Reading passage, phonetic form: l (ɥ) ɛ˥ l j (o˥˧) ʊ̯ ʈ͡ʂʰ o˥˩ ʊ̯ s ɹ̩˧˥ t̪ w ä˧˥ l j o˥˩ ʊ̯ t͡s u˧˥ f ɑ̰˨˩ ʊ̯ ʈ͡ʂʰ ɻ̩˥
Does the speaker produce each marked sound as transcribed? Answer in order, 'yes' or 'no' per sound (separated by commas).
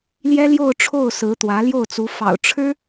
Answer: no, yes